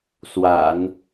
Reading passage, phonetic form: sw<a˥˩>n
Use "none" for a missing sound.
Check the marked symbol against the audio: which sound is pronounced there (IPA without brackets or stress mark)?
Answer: a̰˨˩˦